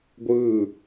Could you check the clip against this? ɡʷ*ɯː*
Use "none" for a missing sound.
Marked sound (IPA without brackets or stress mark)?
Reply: ɯː